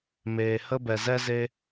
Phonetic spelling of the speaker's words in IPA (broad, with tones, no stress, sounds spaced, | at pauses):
m eː˨ h ə˦ b ɛ˨ z ɛ˦ z e˧